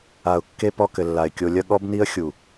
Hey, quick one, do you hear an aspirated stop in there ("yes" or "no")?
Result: no